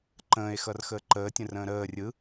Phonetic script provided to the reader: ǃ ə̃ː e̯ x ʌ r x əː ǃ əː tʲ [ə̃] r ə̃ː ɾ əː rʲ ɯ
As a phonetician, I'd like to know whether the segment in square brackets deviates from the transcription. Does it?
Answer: no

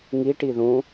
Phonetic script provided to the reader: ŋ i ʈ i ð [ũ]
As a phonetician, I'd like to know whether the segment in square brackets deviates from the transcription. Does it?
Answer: no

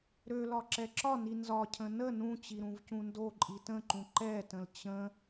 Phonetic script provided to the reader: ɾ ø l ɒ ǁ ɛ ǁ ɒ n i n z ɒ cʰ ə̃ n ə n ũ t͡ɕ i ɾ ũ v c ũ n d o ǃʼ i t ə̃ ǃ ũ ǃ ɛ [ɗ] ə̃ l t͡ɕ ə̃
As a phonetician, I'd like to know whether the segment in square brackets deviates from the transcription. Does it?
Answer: yes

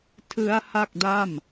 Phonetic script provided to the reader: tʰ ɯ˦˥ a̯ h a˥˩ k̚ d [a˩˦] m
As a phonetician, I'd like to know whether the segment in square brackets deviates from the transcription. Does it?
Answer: yes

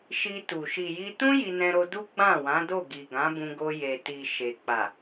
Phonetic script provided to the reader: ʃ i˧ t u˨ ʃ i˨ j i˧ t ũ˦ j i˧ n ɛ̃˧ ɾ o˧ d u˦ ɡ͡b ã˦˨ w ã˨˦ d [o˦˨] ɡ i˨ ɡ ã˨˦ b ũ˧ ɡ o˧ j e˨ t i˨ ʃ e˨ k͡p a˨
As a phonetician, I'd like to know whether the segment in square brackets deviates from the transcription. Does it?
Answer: no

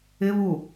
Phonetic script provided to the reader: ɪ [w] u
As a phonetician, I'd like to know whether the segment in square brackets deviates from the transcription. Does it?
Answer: yes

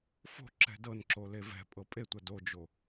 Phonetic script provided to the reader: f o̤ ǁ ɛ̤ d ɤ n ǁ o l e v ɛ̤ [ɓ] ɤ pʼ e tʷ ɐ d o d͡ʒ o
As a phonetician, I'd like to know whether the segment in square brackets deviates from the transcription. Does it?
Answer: yes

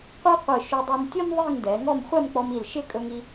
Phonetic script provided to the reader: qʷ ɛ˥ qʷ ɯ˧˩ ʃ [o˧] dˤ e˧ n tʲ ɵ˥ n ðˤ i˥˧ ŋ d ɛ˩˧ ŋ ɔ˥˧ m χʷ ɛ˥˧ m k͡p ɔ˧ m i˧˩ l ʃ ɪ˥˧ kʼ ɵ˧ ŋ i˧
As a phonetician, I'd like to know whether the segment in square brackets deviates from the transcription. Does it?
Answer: yes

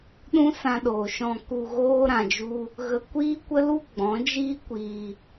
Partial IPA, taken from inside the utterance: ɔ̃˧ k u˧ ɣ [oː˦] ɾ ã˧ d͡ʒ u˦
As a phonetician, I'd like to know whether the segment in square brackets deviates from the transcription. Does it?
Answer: no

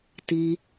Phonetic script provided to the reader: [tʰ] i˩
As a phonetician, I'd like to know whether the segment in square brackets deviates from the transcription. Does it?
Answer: yes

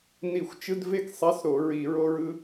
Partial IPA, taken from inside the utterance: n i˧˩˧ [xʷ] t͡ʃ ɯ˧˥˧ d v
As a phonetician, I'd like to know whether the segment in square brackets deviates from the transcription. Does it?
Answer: no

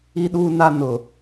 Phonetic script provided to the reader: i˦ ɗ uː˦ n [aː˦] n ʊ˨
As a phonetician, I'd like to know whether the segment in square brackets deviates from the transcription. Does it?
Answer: yes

